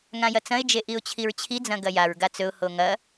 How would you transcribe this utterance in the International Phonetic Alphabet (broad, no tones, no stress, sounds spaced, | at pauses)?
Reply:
ŋ ã j ɐ t͡s ɐ̃ ɪ̯ d͡ʒ e ʔ i ʊ̯ t͡ɕʰ i ɹ t͡ɕʰ i d͡z ɐ̃ ɡ ɐ j a ɹ ɡ a t͡s ɵ ʊ̯ h o ŋ ɐ